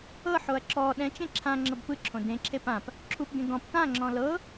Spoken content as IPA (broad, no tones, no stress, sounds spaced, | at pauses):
ɤ ħ o ɐ̯ ǁ ɔ ɗ ɛ̃ t͡ʃ ẽ ǁʰ ã ŋ͡ǁ ɤ b p ɯ ǁʰ õ d ẽ ǁʰ e p ã p | ǁʰ u p ɡ ẽ ɡ ɔ̃ p t ã ŋ͡ǁ ɔ̃ l ɤ